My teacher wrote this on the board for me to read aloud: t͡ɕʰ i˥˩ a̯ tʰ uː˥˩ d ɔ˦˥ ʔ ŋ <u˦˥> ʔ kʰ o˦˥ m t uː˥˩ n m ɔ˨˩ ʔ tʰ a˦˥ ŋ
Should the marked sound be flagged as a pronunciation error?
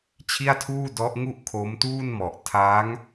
yes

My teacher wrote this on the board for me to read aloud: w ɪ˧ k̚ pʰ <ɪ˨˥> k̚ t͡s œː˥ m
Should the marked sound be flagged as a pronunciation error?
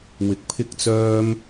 yes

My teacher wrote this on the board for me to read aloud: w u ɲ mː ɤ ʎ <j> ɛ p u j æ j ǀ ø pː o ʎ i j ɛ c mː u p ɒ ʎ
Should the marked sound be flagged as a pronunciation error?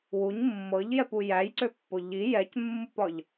no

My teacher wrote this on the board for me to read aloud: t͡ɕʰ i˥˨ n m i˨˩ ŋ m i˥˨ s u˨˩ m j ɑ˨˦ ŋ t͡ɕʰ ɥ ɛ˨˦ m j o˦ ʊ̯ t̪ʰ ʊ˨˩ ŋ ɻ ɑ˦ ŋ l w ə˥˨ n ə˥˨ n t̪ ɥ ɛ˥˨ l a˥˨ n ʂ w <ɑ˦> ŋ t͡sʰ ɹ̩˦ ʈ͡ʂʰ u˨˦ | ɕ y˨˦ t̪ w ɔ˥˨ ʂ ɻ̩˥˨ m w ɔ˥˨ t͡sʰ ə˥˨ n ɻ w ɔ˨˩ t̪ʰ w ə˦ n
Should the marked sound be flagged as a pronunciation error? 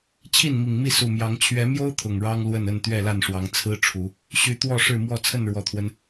yes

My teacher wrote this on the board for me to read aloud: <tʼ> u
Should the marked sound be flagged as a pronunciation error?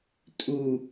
no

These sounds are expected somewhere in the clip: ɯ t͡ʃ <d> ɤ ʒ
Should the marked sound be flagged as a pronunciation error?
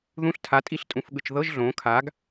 yes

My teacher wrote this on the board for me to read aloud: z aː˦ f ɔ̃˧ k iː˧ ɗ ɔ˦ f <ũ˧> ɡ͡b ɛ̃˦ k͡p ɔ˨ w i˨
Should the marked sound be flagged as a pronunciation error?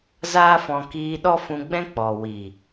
no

